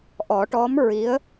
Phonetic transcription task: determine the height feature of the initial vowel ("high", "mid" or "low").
mid